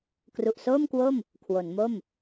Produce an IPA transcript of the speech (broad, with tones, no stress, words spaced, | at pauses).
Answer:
kru˨˩ʔsoː˥˩mkwo˥˩m | kʰwo˩˦nmo˥˩m